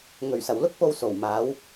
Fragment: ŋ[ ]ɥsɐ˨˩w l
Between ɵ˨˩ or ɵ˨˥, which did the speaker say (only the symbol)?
ɵ˨˩